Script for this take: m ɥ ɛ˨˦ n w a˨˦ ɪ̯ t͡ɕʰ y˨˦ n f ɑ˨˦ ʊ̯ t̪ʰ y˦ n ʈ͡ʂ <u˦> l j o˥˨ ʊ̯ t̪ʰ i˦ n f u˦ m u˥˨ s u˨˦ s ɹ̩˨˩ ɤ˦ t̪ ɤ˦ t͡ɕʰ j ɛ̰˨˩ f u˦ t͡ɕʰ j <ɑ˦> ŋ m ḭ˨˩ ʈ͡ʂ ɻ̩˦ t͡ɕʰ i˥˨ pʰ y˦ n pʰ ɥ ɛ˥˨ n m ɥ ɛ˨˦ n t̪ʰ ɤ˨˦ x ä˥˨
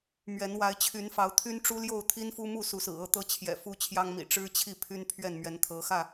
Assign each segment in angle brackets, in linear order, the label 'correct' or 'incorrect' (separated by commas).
correct, correct